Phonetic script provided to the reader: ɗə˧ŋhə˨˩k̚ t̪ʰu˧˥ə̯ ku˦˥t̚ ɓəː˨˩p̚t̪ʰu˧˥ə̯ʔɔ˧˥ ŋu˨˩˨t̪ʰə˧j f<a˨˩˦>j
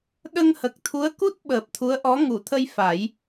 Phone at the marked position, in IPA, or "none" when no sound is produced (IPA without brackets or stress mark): a˨˩˦